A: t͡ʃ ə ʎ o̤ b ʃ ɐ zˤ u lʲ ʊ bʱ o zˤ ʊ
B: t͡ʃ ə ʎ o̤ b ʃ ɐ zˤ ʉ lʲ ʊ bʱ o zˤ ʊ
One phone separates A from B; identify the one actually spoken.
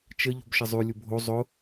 B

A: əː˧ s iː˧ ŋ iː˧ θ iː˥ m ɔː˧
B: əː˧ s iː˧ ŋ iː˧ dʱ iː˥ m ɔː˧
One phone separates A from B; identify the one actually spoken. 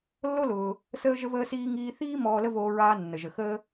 A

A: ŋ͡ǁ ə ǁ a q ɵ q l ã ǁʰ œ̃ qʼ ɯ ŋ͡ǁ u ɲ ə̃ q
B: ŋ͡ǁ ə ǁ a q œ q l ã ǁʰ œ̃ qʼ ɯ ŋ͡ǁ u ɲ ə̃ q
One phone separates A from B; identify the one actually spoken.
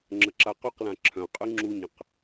A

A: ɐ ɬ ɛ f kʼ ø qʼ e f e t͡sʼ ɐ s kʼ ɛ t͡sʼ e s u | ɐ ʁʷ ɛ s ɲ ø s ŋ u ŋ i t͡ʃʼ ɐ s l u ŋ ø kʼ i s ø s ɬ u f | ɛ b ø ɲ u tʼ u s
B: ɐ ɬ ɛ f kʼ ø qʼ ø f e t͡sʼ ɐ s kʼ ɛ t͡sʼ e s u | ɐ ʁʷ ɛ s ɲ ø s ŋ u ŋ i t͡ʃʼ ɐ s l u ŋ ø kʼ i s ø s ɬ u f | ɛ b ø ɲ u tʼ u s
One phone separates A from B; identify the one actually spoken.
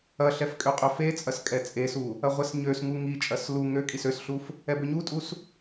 B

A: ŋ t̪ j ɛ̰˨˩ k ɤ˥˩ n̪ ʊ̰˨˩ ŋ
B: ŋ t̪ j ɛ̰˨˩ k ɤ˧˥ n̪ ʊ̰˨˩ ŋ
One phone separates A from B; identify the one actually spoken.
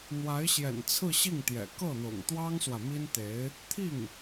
A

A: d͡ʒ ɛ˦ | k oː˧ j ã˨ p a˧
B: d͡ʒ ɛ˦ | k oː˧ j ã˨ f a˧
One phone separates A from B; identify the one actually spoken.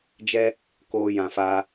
B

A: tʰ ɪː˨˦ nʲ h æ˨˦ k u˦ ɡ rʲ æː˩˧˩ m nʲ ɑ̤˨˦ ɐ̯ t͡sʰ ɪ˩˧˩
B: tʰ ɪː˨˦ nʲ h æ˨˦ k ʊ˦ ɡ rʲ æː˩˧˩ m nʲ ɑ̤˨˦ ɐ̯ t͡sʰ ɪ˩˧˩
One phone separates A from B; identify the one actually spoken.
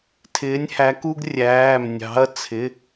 A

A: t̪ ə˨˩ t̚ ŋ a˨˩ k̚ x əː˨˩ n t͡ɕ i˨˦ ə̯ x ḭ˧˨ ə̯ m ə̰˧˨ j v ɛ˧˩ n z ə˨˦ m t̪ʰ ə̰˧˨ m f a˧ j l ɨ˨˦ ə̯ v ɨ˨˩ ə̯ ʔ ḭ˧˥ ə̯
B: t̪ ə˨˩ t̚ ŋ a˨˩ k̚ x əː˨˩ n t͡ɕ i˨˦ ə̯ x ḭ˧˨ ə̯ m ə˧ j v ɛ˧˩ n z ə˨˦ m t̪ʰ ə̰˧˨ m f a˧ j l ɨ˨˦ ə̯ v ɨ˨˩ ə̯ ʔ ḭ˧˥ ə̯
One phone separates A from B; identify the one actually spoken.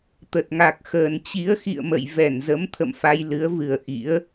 A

